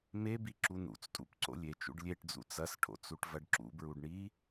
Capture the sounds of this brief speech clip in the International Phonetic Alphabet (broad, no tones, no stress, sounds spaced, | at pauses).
m e b i ǁ u n ṵ t͡s tʼ ṵ p ǀ o̰ lʲ e t͡ʃ ṵ ɖ lʲ e ʈ d͡z ṵ t͡s ɐ s ʈʰ o̰ t͡s u ʈ v ɐ ɖ ǁ ṵ b ɹ u ɖ ɳ i